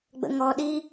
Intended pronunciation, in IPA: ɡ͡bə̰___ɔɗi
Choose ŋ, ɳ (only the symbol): ŋ